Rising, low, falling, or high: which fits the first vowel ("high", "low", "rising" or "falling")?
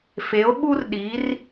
rising